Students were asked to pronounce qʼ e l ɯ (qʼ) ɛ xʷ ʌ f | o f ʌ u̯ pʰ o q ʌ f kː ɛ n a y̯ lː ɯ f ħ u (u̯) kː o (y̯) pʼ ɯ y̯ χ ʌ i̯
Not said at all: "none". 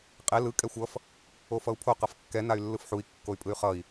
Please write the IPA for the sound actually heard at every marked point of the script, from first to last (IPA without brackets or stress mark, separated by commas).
kʼ, i̯, y̯